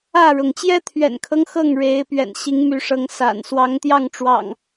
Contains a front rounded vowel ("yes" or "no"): yes